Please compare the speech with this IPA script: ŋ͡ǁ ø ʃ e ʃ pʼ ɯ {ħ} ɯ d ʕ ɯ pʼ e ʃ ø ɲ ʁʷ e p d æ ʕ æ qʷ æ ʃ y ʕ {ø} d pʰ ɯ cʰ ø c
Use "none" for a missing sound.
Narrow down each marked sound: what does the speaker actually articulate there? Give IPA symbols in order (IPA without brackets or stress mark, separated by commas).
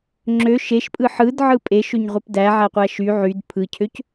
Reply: ħ, y